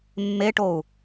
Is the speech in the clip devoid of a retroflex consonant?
no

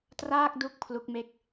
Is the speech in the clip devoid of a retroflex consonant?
yes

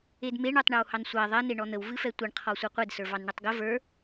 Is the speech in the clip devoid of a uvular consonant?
no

